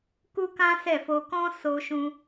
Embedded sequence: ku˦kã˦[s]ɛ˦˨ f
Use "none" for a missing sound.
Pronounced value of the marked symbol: s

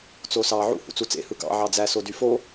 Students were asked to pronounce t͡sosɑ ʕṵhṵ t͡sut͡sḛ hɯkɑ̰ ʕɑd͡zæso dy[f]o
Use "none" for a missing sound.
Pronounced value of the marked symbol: f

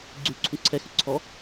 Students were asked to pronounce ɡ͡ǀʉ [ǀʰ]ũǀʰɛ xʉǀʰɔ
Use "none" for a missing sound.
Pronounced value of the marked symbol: ǀʰ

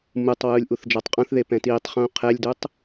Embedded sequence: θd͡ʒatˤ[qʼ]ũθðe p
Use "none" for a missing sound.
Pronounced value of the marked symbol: qʼ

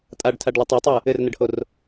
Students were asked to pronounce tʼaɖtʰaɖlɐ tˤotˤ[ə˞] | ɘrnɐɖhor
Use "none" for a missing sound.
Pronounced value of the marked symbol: ə˞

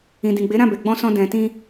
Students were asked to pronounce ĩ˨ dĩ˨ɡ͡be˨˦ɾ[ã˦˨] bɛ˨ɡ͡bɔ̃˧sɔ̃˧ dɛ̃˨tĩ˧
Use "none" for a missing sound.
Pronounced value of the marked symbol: ã˦˨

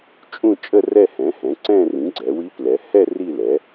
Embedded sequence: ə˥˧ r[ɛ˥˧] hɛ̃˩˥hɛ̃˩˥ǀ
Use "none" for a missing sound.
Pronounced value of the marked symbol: ɛ˥˧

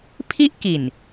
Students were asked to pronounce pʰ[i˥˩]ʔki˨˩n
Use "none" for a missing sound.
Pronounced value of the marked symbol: i˥˩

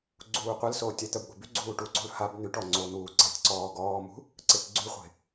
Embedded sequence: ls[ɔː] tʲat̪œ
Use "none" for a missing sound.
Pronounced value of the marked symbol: oː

